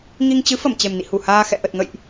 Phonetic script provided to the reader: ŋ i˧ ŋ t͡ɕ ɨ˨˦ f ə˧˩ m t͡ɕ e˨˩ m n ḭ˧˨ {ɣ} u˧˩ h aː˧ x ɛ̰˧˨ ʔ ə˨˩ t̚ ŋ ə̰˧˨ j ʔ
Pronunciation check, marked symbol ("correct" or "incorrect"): incorrect